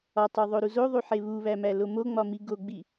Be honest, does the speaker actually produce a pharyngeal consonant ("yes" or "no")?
yes